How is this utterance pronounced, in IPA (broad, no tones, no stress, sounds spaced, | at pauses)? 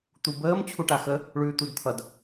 t̪ u b əː m t͡ɕʰ u ʈ a x ə | ɭ ʉː t̪ u d t̪ʰ ʌ d